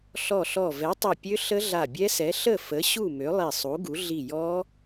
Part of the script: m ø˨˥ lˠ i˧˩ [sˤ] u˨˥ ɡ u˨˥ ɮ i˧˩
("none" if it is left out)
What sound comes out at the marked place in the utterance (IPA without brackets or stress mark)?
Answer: sˤ